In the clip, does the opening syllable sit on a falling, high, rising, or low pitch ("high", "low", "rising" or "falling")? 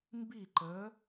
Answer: falling